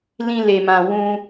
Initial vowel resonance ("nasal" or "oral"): nasal